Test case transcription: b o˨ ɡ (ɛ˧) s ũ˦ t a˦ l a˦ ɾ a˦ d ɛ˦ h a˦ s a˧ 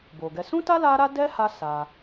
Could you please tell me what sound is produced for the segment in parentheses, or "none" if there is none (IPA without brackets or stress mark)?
ɛ˧